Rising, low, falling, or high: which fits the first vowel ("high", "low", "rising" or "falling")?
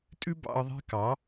high